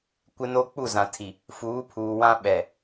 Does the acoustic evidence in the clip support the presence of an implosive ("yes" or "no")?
yes